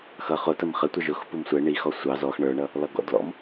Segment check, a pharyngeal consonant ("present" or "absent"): absent